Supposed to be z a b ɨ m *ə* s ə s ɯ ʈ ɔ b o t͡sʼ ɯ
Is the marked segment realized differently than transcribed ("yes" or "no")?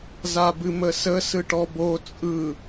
no